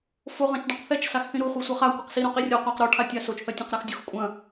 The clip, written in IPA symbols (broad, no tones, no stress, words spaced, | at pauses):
fo ʁɐ̃t͡ʃɖɐ̃qθɛt͡ʃ saxθĩɾu χʷisʷɐχa kʷɘqsi ɾõqirʲɔ qʷaqɾɔ ʈʰatʲasot͡ʃ θɐtʲɐ̃qɾaxdʲux kʷʼɐ̃